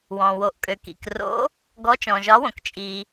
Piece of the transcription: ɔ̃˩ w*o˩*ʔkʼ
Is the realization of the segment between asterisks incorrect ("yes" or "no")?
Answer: no